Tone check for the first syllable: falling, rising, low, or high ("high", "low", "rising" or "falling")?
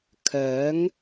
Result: rising